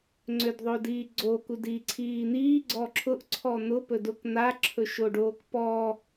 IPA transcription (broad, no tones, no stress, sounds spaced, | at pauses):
ŋ͡ǀ ø d ðˤ o d iː ɡ͡ǀ o k u d iː ǀʰ iː n̪ iː ɡ͡ǀ ɔ ǁʰ ʊ ʔ ǀʰ ɔ n̪ ʊ p ɵ d ʊ k n̪ a ǁʰ ɵ ʃ o ɖ oː k p ɔ